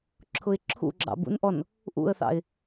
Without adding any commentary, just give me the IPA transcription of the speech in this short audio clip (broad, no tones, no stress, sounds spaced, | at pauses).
ǁʰ ʊ ɪ̯ ǁʰ ṵ ɡ͡ǁ ɑ̰ b ṵ n ʔ ɔ n | ʔ ṵ ə̯ θ ɑ̰ ɪ̯